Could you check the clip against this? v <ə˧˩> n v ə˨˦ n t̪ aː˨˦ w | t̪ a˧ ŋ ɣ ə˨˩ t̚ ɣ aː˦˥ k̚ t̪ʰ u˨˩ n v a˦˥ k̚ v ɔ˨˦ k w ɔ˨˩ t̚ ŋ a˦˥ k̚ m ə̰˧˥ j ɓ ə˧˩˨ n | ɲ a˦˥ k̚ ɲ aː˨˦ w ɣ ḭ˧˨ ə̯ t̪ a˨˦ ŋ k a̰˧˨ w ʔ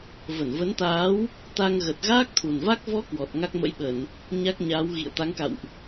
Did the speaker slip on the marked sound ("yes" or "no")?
no